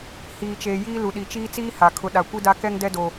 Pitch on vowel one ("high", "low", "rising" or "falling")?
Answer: low